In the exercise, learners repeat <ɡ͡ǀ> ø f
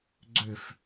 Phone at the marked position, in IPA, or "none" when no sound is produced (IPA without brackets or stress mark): ɡ͡ǀ